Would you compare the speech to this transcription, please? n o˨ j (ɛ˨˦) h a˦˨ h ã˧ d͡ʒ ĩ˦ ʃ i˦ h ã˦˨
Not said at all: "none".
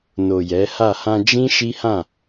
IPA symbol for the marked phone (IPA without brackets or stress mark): ɛ˨˦